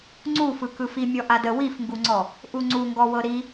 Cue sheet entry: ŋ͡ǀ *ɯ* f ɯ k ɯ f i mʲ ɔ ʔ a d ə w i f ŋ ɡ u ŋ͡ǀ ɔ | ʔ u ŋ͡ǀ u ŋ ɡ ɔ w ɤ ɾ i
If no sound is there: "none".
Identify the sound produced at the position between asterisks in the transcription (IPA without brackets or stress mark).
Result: u